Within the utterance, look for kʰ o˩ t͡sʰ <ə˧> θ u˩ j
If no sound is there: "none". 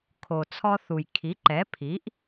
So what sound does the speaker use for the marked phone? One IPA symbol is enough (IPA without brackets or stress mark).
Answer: ɔ˧